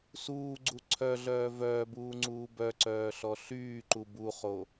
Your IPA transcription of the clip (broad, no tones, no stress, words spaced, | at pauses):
suːɡ͡ǀu ǀʰœɮœː vœːbuːŋ͡ǀuː bœǀœːɬɔ ɬyːǃu buχo